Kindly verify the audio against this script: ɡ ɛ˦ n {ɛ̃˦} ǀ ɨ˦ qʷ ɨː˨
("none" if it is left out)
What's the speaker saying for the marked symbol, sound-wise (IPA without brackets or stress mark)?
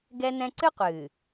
ɛ̃˦